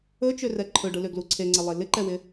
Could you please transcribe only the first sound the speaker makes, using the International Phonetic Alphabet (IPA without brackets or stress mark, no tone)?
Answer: ɵ